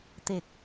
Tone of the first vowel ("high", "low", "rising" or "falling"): low